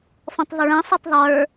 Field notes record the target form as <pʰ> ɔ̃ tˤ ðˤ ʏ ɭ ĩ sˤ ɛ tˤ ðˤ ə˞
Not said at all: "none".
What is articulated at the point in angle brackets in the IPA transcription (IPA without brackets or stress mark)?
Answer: f